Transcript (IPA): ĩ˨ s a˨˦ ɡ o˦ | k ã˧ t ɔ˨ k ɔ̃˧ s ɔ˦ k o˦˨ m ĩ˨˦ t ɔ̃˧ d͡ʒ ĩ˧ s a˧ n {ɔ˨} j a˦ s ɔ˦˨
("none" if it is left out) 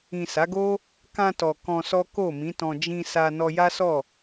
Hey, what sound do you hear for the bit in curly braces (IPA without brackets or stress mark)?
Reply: ɔ˧